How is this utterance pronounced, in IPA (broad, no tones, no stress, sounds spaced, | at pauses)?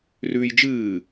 r ʉː j d͡ʒ ɨː